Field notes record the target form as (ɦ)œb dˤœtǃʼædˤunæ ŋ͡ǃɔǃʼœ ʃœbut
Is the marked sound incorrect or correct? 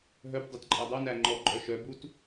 correct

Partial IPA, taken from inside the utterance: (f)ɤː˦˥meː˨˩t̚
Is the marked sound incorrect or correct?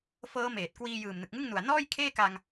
correct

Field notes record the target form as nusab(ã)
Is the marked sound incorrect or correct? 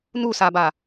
incorrect: a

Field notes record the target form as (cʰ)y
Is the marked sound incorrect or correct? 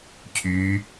correct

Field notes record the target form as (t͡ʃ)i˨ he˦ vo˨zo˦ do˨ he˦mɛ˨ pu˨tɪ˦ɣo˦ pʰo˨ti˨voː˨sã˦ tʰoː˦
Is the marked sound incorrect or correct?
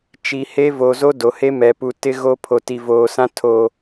correct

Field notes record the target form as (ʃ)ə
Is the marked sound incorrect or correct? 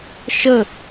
correct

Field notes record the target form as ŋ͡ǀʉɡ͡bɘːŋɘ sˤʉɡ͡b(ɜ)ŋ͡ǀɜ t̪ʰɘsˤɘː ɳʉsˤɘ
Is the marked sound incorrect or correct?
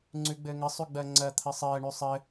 correct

